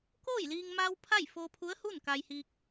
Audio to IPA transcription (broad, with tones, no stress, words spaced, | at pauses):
koː˥˨jliː˧ŋ ma˧w pʰa˥˨jfoː˧pʰu˧˥ə̯hu˥˨n ka˧jhiː˧k̚